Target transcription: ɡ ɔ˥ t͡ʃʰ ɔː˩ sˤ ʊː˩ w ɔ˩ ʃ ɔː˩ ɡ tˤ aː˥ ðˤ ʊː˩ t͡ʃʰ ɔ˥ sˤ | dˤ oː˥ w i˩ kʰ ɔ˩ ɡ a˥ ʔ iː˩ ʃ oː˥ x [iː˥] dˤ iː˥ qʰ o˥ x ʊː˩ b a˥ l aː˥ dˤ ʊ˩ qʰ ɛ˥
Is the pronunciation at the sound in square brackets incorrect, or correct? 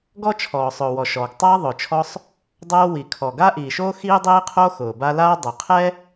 correct